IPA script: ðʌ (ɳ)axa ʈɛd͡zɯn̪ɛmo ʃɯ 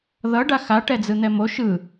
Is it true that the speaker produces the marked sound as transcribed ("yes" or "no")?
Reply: no